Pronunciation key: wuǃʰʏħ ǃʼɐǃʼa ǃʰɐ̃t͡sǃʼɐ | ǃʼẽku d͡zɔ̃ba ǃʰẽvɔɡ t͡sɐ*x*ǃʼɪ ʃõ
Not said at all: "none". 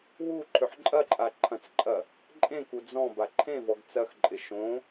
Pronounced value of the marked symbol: x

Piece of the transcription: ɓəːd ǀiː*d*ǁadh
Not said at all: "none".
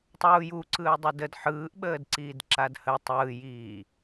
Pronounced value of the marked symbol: d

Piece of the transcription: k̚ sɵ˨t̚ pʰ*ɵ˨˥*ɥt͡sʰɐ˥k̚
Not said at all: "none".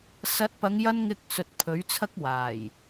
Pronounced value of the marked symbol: ɵ˨˥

